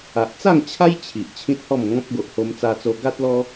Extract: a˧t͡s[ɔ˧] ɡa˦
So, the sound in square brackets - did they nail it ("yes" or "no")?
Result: no